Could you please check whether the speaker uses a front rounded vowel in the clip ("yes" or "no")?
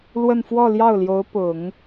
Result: no